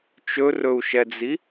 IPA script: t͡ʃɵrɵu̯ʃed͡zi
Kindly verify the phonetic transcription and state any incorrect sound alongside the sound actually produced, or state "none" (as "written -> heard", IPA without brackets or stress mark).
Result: e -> ɛ